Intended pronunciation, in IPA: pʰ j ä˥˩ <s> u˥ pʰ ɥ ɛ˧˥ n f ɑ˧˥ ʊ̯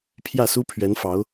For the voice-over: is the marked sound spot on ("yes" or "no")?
yes